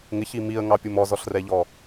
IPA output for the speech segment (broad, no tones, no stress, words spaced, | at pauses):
ŋɪçi miə̯ŋɑpʲum ɔzɔɬrɛʎɔ